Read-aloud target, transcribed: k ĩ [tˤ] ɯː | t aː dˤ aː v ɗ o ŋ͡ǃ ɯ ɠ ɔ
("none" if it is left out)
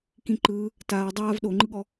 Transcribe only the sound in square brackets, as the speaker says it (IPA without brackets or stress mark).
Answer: ǃ